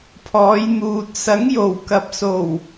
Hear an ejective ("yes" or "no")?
no